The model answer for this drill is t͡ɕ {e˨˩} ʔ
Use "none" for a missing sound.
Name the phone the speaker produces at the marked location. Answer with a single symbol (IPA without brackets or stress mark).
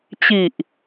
i˨˩